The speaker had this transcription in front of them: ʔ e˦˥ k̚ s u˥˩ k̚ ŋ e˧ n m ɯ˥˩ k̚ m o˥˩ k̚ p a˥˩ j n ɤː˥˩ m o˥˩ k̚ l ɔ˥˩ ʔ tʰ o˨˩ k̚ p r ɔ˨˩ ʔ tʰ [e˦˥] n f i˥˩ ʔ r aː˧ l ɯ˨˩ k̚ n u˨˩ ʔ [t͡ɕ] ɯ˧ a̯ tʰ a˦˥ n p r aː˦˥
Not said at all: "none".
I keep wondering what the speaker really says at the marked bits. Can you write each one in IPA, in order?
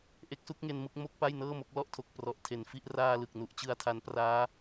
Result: e˨˩, t͡ɕ

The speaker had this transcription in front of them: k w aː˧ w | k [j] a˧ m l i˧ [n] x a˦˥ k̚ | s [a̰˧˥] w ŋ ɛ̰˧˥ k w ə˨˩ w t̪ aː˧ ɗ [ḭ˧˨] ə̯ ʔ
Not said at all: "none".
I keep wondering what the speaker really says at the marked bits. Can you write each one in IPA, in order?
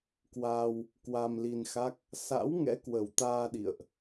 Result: w, n, a̰˧˥, ḭ˧˨

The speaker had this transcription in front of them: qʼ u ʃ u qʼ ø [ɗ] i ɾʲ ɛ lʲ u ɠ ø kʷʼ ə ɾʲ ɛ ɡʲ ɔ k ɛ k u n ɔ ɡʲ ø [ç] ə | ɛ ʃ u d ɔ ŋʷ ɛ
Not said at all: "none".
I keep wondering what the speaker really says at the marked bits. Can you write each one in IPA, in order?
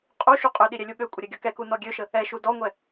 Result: ɗ, ʃ

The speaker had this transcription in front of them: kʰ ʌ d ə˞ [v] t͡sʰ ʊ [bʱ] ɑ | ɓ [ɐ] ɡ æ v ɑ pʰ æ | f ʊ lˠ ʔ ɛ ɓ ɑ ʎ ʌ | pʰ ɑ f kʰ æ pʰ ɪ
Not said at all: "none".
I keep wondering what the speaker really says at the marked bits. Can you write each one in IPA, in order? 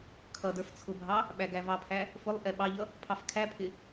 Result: f, bʱ, æ

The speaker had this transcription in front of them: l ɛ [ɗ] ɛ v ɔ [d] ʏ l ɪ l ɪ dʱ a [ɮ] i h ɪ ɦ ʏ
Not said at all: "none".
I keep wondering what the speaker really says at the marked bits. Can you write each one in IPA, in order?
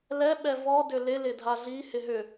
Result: ɓ, d, ɮ

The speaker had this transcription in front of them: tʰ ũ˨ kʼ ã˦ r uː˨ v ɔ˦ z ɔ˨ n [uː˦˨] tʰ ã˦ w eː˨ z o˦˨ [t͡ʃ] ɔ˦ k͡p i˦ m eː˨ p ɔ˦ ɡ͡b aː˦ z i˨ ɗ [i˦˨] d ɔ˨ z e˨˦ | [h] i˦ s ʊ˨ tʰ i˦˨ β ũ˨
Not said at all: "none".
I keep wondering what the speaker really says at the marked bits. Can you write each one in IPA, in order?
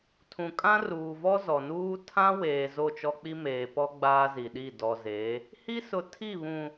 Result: uː˦, t͡ʃ, i˦˨, h

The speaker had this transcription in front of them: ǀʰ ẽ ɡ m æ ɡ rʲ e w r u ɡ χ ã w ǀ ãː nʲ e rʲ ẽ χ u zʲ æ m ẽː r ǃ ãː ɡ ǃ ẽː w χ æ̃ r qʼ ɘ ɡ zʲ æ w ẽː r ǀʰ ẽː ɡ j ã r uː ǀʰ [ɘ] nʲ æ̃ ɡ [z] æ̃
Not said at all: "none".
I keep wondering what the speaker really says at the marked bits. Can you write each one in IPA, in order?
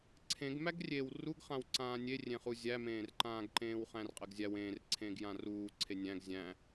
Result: e, zʲ

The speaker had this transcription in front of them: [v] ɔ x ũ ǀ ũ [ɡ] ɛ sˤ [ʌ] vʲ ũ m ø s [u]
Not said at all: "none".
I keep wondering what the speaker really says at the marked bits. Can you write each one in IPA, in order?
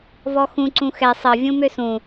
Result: v, x, ʌ, ũ

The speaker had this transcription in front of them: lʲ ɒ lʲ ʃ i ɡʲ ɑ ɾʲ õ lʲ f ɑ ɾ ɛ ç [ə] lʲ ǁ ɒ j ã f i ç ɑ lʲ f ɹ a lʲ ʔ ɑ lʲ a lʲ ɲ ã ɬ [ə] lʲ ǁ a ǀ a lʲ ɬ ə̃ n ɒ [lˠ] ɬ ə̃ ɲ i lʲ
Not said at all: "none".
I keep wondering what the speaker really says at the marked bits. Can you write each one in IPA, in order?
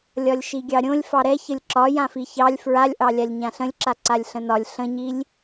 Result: ə, ə̃, lʲ

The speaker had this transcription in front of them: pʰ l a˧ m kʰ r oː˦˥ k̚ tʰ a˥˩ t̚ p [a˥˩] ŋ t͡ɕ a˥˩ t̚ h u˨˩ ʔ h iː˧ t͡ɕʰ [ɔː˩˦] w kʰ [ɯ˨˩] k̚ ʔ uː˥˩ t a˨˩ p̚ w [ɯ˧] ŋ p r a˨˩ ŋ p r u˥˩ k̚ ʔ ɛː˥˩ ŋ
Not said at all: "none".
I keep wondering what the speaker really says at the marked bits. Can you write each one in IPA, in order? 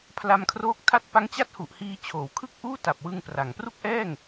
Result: a˦˥, oː˩˦, ɯ˥˩, ɯ˧

